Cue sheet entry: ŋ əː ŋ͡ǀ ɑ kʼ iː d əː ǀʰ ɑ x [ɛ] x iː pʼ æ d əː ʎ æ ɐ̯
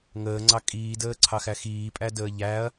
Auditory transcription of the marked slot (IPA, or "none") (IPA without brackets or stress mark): æ